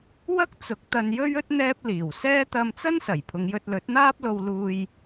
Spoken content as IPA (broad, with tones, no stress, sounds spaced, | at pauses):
w ɐ˥ k̚ t͡s ʊ˨˥ k̚ t̪ ɐ˧ n j ɵ˥ ɥ ɵ˥ t̚ n̪ ɛː˥ p̚ l iː˨˩ w s ɛː˥ t̪ ɐ˧ m t͡s ɐ˥ n s ɐ˨˩ j pʰ ʊ˨˧ ŋ j ɵ˧ t̚ l ɵ˨˥ t̚ n̪ aː˥ p̚ l o˧ w l uː˧ j